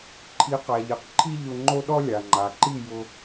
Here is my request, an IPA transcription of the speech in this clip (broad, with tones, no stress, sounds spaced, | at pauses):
ǃʰ i˨˦ q a˨ ʎ i˨ q ǃʰ i˦ ʎ ʊ˧ ŋ͡ǃ o˦ ɗ ɔ˦ lʲ a˨ ŋ͡ǃ a˨ ǃ i˦˨ j ʊ˧